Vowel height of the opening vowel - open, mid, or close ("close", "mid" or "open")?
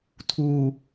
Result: close